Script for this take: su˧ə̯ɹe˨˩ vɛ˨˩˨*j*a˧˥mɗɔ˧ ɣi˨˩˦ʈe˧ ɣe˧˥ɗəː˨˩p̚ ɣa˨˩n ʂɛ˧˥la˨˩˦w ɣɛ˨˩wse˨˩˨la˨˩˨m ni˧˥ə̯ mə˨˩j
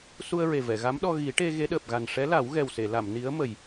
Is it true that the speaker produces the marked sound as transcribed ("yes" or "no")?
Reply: no